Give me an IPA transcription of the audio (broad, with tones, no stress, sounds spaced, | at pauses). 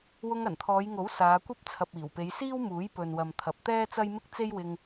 w ʊ˧ ŋ ɐ˨˩ n t̪ʰ ɔː˨˧ j ŋ o˨˥ w s aː˨˧ kʷ ɐ˥ p̚ t͡sʰ ɐ˨ p̚ iː˨˩ w p e˨˧ j s iː˥ w m uː˨˥ j p ɵ˨ n w ɐ˨ m t̪ʰ ɐ˨ p̚ t̪ ɛː˥ t͡s ɐ˥ j m ɪ˥ k̚ t͡s e˥ j w ɪ˧ ŋ